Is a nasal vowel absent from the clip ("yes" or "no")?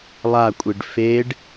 yes